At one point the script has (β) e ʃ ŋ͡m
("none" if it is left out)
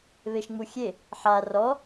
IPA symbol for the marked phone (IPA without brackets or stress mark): β